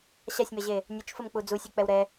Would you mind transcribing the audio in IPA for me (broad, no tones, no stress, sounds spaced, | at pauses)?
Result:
ɕ a sʲ m ɛ ʑ e | nʲ ə t͡ʃ f ə m k͡p u d͡z u sʲ ʉ k͡p ɛ w ɾ ɛ